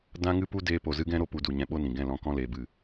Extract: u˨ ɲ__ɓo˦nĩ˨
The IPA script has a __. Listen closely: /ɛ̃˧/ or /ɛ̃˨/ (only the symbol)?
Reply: ɛ̃˧